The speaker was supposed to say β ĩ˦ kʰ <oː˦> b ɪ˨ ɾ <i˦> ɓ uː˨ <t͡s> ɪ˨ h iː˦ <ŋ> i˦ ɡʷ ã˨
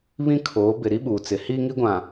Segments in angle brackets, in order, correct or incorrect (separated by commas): incorrect, correct, correct, correct